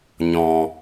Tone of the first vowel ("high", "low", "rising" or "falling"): low